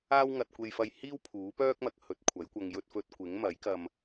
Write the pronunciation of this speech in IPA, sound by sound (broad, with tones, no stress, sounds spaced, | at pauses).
aː˥ w ŋ ɐ˧ t̚ kʷ e˧ j f ɐ˧ j h iː˥ w pʰ uː˨˥ p œː˥ k̚ m ɐ˨˥ k̚ h ɵ˨˥ t̚ kʷʰ ɐ˨˥ j kʷ ɐ˧ ŋ j ɵ˧ t̚ f ɵ˧ t̚ kʷ ɪ˨˥ ŋ m ɐ˨˥ j k ɐ˧ m